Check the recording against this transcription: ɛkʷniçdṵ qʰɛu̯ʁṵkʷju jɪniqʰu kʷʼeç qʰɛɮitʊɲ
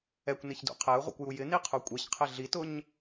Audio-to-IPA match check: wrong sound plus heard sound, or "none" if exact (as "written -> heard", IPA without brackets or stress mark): none